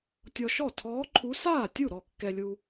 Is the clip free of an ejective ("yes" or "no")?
yes